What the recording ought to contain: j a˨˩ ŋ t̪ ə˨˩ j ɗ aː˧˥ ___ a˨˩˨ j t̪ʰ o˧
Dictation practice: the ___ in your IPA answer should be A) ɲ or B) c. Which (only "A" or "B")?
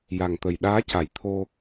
B